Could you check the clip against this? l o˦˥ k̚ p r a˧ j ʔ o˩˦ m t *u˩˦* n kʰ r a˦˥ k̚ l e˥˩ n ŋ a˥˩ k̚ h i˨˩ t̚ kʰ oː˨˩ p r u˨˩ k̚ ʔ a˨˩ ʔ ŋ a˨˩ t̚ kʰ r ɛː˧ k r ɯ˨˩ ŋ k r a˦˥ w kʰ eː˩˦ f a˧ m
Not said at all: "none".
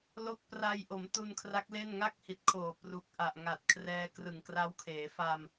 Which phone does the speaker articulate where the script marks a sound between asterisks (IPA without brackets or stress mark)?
u˧